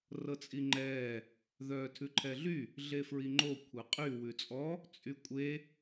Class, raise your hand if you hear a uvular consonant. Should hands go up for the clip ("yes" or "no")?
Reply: yes